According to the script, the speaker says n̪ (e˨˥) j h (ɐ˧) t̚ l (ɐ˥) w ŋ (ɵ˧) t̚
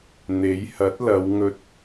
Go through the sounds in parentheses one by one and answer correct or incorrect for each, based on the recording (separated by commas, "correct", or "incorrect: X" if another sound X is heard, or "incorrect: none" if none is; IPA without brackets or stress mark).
correct, incorrect: ɐ˨˥, incorrect: ɐ˨˧, correct